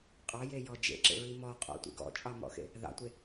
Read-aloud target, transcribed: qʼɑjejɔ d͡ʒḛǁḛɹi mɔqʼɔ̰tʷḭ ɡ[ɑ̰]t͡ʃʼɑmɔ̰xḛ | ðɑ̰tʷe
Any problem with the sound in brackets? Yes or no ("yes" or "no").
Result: yes